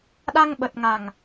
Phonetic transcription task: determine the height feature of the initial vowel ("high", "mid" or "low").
low